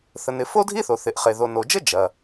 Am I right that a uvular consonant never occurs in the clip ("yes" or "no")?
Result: no